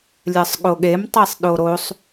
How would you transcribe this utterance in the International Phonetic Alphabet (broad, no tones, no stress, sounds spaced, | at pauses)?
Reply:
lʲ ɜ sˤ ɠ o ɠ e m tˤ e sˤ ɗ o ɾ o sˤ